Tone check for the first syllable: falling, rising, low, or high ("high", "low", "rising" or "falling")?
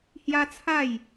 high